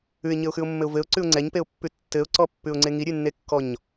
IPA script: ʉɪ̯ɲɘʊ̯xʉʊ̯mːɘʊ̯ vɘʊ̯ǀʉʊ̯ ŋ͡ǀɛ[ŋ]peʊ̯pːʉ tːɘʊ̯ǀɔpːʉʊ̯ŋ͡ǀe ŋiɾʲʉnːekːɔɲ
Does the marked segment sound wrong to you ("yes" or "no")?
yes